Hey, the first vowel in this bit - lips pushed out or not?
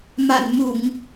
no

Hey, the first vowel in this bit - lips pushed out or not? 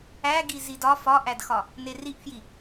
no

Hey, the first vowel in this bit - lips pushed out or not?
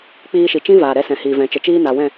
no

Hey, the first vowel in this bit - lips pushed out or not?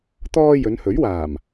yes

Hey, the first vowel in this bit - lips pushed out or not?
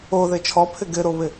yes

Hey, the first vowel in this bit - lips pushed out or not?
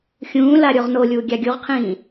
yes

